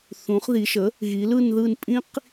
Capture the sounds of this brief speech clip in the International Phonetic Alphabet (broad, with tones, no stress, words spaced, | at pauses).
θũ˩˧χði˩˧ʃə˩˥ | ɣi˩˧lɯ˦˨nðɯ˦˨n pʼĩ˦q